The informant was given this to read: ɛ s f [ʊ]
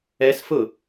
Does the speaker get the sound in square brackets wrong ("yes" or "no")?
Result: no